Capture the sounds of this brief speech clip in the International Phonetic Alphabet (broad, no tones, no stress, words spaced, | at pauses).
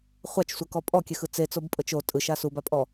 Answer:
χʷat͡ʃsʷɛkɔ pʼɔkʲɛxɯ t͡set͡sobpʼɤt͡ʃ o tʼɯʃa subapʼɔ